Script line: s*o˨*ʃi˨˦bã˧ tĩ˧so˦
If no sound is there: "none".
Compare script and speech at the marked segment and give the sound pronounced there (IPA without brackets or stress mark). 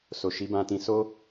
o˨